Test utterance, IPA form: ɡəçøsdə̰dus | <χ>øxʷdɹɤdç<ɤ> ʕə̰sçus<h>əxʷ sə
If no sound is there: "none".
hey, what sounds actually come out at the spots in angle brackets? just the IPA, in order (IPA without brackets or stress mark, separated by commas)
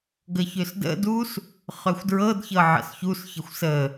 χ, ɤ, ç